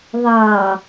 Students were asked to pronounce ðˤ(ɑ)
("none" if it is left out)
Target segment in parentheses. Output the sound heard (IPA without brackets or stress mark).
ɑ